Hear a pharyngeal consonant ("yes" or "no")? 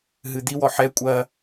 yes